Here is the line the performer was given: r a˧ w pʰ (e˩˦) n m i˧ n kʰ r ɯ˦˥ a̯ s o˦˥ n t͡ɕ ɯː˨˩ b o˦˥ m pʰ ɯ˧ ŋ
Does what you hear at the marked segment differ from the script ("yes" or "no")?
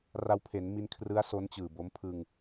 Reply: no